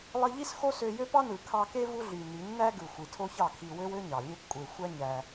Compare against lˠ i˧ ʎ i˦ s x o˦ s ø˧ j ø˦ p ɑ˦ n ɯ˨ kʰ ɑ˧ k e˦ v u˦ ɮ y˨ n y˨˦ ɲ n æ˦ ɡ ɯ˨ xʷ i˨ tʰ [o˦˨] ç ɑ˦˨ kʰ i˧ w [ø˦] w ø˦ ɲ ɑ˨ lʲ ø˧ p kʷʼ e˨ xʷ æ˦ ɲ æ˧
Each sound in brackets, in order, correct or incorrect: incorrect: o˦, correct

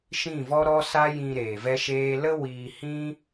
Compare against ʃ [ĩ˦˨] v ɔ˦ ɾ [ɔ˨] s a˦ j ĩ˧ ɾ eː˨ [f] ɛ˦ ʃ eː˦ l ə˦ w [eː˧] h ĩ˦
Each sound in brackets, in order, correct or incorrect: correct, incorrect: ɔ˦, incorrect: v, incorrect: iː˧

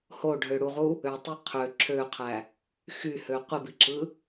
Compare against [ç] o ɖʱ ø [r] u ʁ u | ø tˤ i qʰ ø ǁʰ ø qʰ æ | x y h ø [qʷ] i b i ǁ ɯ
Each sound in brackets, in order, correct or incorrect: incorrect: h, incorrect: ɽ, correct

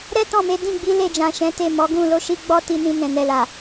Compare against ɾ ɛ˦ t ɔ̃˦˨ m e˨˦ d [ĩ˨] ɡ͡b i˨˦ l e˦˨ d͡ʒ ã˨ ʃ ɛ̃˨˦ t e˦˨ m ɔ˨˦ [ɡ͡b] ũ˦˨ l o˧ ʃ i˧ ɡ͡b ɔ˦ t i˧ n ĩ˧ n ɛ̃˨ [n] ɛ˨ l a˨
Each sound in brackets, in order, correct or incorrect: incorrect: ĩ˦˨, incorrect: ɡ, correct

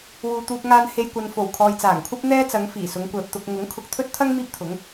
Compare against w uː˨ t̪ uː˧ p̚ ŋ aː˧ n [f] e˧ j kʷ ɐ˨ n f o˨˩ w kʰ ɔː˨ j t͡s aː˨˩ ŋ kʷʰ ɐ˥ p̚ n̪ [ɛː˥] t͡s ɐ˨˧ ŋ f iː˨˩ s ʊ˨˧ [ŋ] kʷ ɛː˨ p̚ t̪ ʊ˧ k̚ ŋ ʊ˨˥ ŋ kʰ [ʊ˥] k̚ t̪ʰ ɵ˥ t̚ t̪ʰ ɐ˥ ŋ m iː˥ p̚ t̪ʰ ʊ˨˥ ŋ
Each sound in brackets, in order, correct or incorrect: incorrect: h, correct, correct, incorrect: ʊ˨

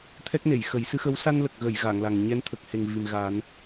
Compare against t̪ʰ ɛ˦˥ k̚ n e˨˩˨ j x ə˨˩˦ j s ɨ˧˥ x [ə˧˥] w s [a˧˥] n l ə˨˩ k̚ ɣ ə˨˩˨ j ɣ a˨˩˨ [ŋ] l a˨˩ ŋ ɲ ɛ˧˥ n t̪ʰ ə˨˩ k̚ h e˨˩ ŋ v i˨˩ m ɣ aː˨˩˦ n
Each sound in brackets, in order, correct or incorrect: correct, incorrect: a˧, correct

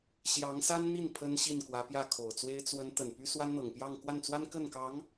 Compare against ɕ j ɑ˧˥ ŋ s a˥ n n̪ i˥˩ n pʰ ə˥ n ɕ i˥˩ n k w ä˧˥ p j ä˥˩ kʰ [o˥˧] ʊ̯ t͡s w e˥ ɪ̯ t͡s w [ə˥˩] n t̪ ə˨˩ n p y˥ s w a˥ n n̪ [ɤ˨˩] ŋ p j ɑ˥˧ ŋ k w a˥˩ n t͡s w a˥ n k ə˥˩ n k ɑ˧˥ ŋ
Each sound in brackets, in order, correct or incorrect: incorrect: o˨˩, incorrect: ə˧˥, correct

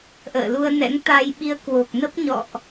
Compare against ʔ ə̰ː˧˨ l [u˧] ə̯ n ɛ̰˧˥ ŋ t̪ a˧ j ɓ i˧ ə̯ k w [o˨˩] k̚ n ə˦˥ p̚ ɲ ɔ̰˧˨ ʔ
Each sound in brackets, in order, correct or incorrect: correct, correct

